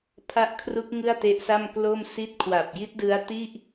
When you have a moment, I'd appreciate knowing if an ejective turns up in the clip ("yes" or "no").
no